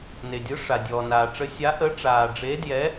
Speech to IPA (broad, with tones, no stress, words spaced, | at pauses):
ne˩dʲɯ˨˥ ʂa˩dʲɔː˩ naː˩ʈ͡ʂə˨˥ sʲa˨˥ ʔə˨˥ʈ͡ʂaː˩ɖ͡ʐe˨˥djɛ˨˥